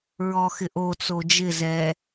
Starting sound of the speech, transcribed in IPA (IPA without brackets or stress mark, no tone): ɹ